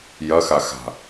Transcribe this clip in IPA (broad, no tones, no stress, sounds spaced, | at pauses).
j ɐ x a x a̤